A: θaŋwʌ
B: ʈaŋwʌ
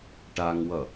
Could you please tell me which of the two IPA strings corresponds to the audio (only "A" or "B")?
B